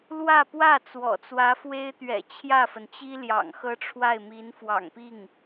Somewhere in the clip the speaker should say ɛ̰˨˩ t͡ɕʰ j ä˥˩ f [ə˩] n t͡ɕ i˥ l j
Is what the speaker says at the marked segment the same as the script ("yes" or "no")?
yes